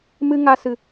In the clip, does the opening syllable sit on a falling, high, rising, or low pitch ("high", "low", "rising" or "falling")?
high